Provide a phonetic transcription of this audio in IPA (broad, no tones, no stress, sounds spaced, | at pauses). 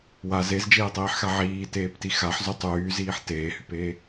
w a z e z d͡ʒ eː tˤ iː ħ x a ʕ iː t eː p t i x a ħ z y tˤ yː z iː ħ t eː h y p eː